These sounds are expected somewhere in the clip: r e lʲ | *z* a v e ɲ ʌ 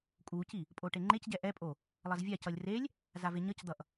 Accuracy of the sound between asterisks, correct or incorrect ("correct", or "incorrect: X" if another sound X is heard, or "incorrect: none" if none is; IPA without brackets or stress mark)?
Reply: correct